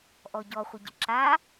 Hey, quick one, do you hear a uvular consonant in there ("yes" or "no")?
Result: yes